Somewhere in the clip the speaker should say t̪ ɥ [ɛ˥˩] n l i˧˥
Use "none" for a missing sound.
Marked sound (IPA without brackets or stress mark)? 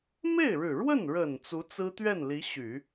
ɛ˥˩